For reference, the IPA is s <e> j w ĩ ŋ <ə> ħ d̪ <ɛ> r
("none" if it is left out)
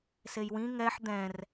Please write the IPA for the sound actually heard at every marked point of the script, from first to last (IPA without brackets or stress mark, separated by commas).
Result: e, ɛ, ɛ̃